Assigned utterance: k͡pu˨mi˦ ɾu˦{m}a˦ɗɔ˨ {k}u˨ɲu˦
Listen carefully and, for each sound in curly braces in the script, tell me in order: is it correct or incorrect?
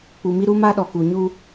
correct, correct

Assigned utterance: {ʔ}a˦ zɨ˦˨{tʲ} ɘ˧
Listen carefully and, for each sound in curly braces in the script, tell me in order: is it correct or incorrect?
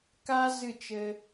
incorrect, incorrect

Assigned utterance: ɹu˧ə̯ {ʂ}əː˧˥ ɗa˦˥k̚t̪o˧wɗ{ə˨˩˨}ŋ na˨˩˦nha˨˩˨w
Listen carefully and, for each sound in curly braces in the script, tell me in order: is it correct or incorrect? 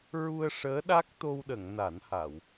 correct, correct

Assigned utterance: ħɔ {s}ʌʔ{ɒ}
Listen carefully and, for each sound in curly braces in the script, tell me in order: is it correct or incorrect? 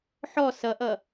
correct, incorrect

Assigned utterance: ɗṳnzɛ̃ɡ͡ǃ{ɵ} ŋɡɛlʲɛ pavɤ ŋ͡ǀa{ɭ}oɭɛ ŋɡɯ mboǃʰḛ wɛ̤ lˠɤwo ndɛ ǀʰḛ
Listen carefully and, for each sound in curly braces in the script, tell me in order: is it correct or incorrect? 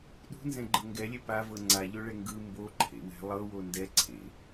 incorrect, incorrect

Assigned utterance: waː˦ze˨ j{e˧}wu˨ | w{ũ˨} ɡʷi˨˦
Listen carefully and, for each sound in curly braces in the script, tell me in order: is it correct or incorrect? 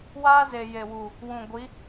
incorrect, correct

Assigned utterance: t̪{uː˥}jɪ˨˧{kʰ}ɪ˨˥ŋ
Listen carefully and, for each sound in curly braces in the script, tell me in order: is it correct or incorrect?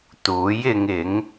incorrect, incorrect

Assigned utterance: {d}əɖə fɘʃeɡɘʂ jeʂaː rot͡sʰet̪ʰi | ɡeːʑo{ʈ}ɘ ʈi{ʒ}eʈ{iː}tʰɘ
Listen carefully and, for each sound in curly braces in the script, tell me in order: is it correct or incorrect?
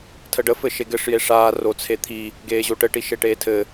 incorrect, correct, incorrect, incorrect

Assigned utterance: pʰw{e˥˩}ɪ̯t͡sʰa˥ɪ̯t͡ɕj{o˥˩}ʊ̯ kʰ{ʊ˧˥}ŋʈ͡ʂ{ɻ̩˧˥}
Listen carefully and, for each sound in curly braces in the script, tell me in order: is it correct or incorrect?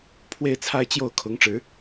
correct, correct, correct, correct

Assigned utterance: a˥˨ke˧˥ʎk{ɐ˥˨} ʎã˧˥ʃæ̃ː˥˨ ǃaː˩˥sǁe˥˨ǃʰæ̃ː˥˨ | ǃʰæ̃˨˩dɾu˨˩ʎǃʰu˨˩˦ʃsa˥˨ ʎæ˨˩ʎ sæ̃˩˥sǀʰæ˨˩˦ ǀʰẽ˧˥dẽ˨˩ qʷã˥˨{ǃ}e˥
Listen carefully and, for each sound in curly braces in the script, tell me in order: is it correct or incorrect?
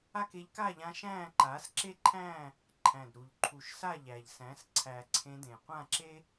incorrect, incorrect

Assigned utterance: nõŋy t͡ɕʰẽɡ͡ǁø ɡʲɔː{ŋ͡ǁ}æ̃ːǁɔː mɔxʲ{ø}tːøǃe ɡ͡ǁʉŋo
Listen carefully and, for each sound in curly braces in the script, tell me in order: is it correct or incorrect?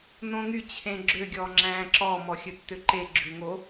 correct, incorrect

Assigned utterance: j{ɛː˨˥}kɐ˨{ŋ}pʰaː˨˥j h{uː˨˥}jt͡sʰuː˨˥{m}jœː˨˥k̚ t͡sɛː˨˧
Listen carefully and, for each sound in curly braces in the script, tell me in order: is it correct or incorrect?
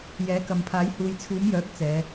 correct, incorrect, incorrect, correct

